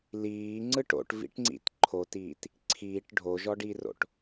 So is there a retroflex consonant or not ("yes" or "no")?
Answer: yes